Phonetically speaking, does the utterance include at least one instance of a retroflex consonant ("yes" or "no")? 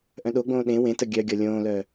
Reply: no